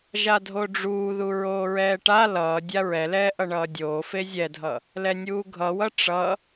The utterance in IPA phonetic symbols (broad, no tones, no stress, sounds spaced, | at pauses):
ʒ a dʱ o ɖ͡ʐ uː ð u ɹ oː ɹ ɛː ʈ a l ʌː dʲ a ɹ ɛ l ɛː ʔ ʌ ɳ ʌː dʲ oː f e zʲ ɛ dʱ ʌ | l ɛ nʲ uː ɡʱ ʌ w ʌ ʈ͡ʂ ʌ